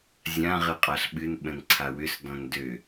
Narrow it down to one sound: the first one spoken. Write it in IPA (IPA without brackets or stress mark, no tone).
zʲ